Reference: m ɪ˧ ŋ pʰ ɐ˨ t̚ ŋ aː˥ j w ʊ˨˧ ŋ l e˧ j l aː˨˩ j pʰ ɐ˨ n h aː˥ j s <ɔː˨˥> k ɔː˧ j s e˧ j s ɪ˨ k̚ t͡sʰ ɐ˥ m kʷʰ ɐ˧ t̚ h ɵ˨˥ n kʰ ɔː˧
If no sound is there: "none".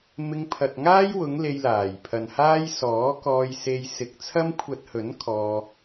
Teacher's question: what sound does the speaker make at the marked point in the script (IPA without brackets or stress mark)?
ɔː˨˥